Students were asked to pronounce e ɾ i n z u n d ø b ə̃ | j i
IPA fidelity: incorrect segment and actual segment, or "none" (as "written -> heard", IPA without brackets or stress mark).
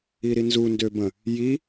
e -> i